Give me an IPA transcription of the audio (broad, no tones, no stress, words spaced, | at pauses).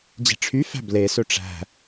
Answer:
d͡ʑe̤ʈ͡ʂʰyfæ̤ ble sɵʈ͡ʂæ̤